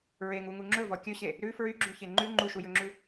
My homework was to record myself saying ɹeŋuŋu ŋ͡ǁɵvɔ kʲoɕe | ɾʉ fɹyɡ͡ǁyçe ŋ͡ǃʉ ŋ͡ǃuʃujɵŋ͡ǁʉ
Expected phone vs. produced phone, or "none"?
o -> ɵ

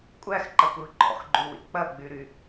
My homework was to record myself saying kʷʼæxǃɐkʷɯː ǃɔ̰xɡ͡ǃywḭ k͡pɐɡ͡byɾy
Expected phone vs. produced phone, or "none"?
none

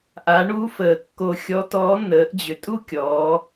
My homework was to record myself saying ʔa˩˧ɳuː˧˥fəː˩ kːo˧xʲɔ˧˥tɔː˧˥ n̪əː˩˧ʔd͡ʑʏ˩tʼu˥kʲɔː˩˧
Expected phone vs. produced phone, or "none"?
none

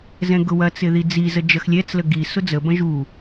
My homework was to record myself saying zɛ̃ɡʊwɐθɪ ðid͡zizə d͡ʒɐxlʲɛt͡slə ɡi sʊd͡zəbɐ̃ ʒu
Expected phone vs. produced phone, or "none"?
θ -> t͡s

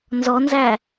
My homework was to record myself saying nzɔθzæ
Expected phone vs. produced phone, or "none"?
θ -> n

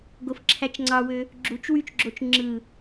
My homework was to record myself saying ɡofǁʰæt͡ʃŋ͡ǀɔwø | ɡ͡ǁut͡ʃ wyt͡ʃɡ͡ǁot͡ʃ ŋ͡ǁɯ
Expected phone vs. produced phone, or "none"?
ɔ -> ɑ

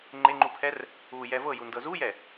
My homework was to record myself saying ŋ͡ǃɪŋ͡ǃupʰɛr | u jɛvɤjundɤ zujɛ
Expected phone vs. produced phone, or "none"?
none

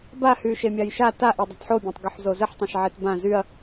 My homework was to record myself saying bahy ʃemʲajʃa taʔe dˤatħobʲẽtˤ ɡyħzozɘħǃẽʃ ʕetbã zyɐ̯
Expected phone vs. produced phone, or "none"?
ǃ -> tˤ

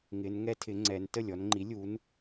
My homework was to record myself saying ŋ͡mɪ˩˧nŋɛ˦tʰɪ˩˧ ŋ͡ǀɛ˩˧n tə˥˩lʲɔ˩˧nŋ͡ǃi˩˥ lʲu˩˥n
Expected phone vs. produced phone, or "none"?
ŋ͡m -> ŋ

